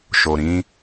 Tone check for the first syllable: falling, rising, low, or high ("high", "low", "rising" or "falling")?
low